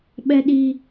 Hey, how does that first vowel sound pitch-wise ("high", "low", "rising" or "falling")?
high